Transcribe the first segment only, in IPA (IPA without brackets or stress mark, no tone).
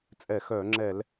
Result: t͡sʼ